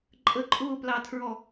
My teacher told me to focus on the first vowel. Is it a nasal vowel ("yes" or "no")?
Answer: no